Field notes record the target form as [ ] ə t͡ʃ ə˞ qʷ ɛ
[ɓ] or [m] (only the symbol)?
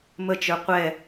m